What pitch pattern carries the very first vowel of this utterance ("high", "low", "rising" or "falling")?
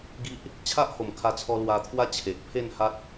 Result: high